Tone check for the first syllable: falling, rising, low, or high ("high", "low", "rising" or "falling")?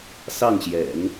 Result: falling